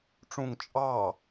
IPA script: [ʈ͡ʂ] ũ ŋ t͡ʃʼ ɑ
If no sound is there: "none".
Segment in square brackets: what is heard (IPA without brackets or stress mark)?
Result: ʈ͡ʂ